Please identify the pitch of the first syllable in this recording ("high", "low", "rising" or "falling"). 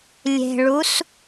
low